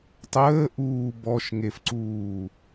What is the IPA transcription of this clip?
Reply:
tˤ əː ʔ uː b ɔ ʃ ŋ e f ǀ uː

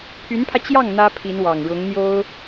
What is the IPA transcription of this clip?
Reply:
pʰ y˧˥ n pʰ ä˧ t͡ɕ j ɑ˥˩ ŋ n̪ ä˥ pʰ i˧˥ n w ɑ˨˩ ŋ ɻ ʊ˧˥ ŋ n̪ j o˥ ʊ̯

